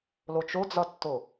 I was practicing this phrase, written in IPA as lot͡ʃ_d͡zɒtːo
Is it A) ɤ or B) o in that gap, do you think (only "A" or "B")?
B